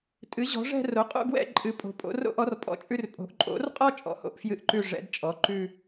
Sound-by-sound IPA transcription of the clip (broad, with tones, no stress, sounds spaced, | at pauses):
tʼ ɨ˩˥ ʑ ɔ̤˩˥ ʐ ɛ̤˥˧ r o˩˥ qʼ o̰˥˧ ɡ w ɛ̰˥˧ ǃʼ ɨ˩˥ pʼ o̤˩˥ pʼ o̰˩˥ r o̰˥˧ ʔ ɔ˩˥ r pʼ ɔ̰˩˥ t͡ʃʼ ʉ˥˧ r pʼ o̤˩˥ ʔ ǃʼ o̰˩˥ r qʼ ɔ˥˧ t͡ʃʼ ɔ̰˩˥ h o̰˥˧ ʔ f j ɨ˥˧ ʔ ǃ ʉ˥˧ ʐ ɛ̰˩˥ d t͡ʃʼ ɔ˩˥ ǃ ʉ˥˧